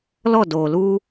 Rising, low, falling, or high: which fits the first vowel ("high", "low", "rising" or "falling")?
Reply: falling